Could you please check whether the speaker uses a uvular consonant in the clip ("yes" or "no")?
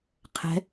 yes